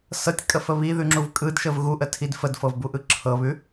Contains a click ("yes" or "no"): yes